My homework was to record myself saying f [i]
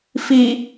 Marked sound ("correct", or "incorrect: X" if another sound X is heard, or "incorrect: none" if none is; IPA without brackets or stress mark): correct